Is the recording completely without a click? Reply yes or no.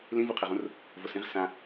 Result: yes